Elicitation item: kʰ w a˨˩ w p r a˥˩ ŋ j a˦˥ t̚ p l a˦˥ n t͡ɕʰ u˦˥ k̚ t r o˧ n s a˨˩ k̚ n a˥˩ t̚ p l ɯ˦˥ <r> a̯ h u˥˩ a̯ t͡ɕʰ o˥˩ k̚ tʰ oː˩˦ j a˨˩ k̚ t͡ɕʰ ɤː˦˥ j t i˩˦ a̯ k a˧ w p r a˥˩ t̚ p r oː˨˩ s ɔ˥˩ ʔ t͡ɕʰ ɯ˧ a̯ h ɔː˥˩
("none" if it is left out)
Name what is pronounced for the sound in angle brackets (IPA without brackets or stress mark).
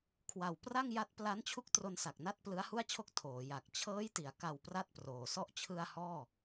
none